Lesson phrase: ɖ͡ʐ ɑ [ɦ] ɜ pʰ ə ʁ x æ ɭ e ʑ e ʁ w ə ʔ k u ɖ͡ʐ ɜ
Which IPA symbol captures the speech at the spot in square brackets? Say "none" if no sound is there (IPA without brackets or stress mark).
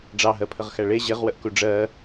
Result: ɦ